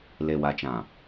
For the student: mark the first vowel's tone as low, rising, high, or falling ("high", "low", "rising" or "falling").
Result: low